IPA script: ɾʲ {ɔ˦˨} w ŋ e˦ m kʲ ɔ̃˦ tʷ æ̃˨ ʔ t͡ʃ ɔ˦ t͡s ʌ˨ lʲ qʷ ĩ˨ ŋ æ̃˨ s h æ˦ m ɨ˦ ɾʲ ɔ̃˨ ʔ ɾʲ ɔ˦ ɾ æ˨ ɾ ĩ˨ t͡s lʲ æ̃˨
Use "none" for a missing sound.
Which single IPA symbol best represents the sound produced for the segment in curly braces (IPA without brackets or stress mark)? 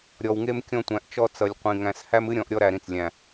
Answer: ɔ˨